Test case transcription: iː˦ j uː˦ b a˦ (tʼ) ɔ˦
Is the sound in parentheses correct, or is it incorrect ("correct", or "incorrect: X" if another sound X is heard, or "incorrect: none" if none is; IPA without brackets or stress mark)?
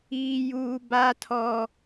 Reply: incorrect: tʰ